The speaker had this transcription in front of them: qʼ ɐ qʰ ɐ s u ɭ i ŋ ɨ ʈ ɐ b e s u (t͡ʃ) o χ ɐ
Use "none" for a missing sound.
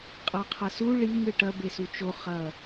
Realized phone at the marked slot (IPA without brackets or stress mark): t͡ʃ